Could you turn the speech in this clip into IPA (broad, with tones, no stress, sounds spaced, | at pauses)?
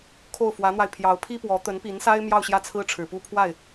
kʰ o˥˩ ʊ̯ f w ä˧˥ n̪ w a˧ ɪ̯ pʰ j ɑ˧˥ ʊ̯ pʰ i˥ p w ɔ˧˥ t̪ ə˧˥ n p i˧˥ n s a˥ ɪ̯ m j ɑ˥˧ ʊ̯ ɕ j ä˥˩ t͡sʰ ɹ̩˥ ʈ͡ʂʰ ɻ̩˨˩ p u˥ pʰ w a˥˩ ɪ̯